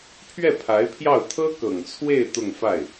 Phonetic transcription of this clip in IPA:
pʰ ɥ ɛ˥˩ pʰ a˧˥ ɪ̯ pʰ j ɑ˥˩ ʊ̯ t̪ʰ ɤ˥ k ɤ˨˩ ŋ t͡sʰ w e˥˧ ɪ̯ t̪ ʊ˥˧ ŋ f a˥˩ ɪ̯

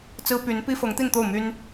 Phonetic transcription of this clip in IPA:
t͡s ɹ̩˥ p y˧˥ n p i˥ f ɤ˧˥ ŋ t̪ i˥˧ n t̪ o˥˩ ʊ̯ m y˥ n

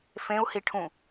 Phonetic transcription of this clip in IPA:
f ẽ u̯ h i ʈʰ ũ

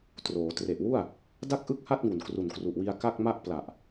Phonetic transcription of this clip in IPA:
t r oː˩˦ t r e˨˩ ʔ w u˥˩ a̯ | d a˥˩ k̚ ʔ ɯ˥˩ k̚ h a˥˩ t̚ ŋ u˨˩ n k r u˨˩ n k r u˨˩ ʔ w i˧ a̯ k a˥˩ k̚ m a˥˩ ʔ p l a˨˩ ʔ

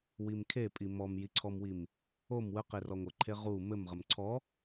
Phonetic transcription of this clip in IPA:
w i m kʰ e pʼ i m ɔ m j i ǀʰ ɔ m w i m | o m w ə q e r ɔ ŋʷ ɘ ǃʰ e ʁ u m ɘ m ʁ ə m ǀʰ ɔ

